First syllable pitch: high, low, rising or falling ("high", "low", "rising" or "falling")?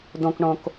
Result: low